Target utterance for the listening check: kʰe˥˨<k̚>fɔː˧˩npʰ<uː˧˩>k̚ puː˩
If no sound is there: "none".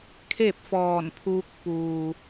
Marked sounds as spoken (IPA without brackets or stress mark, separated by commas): p̚, uː˧